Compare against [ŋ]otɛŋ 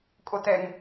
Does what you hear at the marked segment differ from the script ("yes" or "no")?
yes